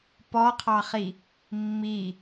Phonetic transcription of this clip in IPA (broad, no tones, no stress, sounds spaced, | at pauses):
p ɔ qʰ ɑ χ i | mː i